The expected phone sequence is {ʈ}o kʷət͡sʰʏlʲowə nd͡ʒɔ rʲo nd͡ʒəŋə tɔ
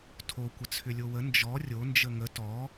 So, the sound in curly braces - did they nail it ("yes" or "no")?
no